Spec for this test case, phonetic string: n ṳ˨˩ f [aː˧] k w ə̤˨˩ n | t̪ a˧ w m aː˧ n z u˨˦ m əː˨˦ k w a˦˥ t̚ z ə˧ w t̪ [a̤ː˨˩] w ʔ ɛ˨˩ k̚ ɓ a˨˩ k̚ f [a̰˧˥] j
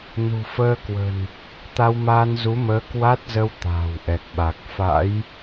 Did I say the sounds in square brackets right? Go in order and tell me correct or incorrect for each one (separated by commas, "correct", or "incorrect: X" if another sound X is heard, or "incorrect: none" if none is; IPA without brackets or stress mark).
incorrect: əː˧, correct, correct